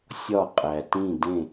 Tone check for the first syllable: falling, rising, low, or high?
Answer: falling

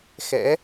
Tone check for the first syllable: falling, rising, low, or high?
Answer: rising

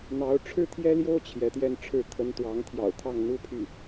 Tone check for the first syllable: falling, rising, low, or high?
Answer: rising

